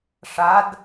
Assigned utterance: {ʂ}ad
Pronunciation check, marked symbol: correct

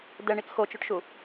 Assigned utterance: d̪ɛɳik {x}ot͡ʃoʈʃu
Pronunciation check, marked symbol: correct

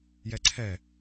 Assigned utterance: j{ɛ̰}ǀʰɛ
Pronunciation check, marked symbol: incorrect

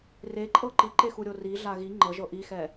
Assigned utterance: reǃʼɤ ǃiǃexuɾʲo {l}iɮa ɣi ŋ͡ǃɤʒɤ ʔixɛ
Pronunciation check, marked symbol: incorrect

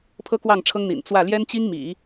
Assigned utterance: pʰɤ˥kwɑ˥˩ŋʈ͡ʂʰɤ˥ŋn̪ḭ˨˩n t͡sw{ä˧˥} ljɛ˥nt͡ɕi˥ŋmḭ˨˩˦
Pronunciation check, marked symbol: incorrect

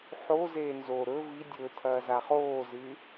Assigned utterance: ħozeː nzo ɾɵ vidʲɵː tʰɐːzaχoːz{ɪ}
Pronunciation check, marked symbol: incorrect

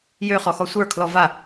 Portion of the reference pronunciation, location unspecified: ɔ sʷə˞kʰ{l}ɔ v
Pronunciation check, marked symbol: correct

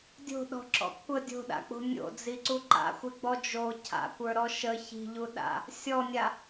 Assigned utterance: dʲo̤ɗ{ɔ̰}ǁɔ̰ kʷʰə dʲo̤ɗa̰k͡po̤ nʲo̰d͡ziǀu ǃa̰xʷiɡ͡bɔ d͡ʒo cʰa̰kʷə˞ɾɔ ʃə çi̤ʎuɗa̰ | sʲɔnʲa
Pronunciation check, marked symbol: incorrect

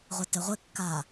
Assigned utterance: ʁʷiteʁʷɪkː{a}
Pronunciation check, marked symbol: incorrect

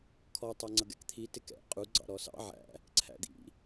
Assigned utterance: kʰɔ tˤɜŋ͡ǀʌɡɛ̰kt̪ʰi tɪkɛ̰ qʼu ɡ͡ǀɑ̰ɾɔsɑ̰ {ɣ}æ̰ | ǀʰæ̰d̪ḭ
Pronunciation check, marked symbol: incorrect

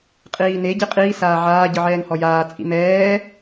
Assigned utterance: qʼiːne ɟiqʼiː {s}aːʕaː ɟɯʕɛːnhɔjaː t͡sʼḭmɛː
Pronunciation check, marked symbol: correct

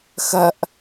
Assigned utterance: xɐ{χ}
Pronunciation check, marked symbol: incorrect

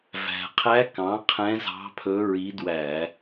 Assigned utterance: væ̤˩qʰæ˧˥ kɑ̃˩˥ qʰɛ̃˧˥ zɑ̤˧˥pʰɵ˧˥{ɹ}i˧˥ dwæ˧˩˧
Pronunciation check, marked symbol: correct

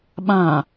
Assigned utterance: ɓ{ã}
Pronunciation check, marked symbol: correct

